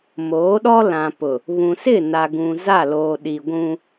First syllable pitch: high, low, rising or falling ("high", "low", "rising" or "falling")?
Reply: rising